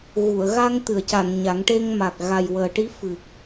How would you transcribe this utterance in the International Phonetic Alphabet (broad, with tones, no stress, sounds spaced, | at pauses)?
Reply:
ɣ u˨˩˨ ə̯ ɣ a˧ ŋ t̪ ɨ˨˩˨ ə̯ c a˨˩˨ n ɲ a˨˩˦ ŋ ʈ e˧ ŋ m a˨˩ k̚ ɣ a˨˩ j w əː˨˩ ʈ i˧˥ f ɨ˨˩ k̚